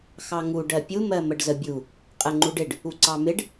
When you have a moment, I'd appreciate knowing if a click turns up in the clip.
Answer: yes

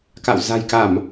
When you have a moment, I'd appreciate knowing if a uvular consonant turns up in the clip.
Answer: no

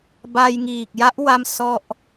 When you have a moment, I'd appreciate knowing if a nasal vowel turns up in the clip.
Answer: no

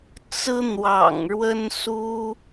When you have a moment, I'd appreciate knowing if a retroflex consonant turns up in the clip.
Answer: yes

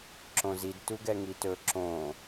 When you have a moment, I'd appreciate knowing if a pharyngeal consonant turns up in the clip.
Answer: no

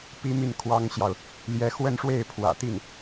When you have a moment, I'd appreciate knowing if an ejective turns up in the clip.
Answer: no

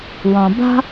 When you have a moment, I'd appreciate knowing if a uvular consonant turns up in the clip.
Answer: no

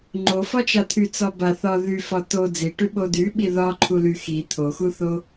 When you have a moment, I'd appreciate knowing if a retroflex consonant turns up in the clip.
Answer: yes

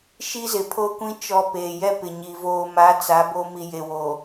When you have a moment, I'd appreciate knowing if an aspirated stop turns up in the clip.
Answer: yes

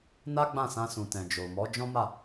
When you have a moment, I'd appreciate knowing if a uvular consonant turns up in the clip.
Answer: no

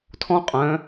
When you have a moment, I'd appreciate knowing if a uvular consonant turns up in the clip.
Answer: yes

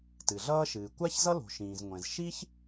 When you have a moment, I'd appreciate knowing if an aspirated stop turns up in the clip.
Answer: no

